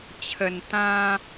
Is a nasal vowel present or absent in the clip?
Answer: present